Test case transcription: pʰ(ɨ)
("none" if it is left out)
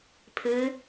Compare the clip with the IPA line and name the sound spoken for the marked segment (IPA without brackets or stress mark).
ɨ